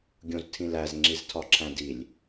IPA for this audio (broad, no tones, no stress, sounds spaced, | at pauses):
ɡʲ õ z tʰ ĩ l æ z ŋ͡ǁ i z tʰ ɒ ǁʰ æ̃ d i lʲ